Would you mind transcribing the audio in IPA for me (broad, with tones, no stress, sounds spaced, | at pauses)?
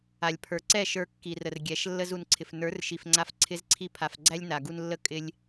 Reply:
a˨ lʲ pʰ ə˞˨ ǀ ɛ˦˨ ʃ ə˞˧ kː i˨ r ə˨ r ɡʲ ɛ˨˦ ʃ lː ə˦ z u˨ n ǀʰ ɪ˨ f n ə˞˨˦ r ʃ i˨ f ŋ͡ǀ a˧ f ǀʰ ɪ˦ z ǀʰ i˦ pʰ a˧ f ɡ͡ǀ æ˦ lʲ n a˨ ɡ u˧ n lː ə˦ kʼ ɪ˦ lʲ